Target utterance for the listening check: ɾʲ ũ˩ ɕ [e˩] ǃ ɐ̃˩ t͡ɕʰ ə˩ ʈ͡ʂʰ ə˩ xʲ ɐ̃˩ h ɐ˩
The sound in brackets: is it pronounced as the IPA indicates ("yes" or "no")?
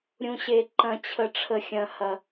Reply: yes